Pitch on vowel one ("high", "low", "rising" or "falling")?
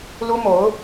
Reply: high